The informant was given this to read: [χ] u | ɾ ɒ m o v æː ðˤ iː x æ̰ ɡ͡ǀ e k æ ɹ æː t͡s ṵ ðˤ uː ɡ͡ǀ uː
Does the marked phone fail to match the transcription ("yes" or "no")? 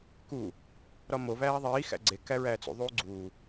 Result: yes